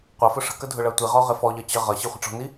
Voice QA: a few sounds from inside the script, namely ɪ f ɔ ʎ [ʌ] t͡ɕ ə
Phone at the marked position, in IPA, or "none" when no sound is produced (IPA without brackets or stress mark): ʌ